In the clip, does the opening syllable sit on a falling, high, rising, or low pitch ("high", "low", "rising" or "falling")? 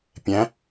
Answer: rising